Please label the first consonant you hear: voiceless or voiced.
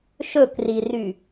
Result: voiceless